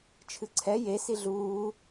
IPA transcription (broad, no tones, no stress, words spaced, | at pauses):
t͡ʃʰɨǀʰɛ je siɮuː